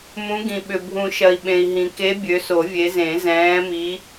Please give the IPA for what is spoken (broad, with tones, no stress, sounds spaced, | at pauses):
m ũ˨˦ ɡ ĩ˩ ɓ ʏ˩ bʱ ũ˨˩˦ ʃ ɐ˩ i̯ ɓ ẽ˩ i̯ ɦ ĩ˩ k e˨˦ bʲ ø˨˦ s o˨˩˦ vʲ e˨˦ z ẽ˨˩˦ z ɛ̃ː˨˦ m i˨˦